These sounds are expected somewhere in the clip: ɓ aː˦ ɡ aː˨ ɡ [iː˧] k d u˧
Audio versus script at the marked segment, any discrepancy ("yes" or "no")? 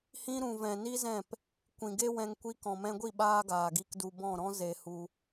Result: yes